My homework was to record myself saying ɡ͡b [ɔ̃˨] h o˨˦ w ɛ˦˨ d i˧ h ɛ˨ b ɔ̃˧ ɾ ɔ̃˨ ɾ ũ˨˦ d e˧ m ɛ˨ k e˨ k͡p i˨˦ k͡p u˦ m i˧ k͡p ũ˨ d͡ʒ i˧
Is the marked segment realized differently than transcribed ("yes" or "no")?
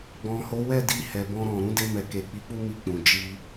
no